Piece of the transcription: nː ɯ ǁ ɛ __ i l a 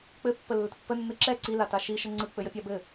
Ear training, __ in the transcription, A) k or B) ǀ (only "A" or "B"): B